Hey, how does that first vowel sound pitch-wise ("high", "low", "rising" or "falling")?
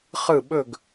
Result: falling